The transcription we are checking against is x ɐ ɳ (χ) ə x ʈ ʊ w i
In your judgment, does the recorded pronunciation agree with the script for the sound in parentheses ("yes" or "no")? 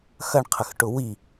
no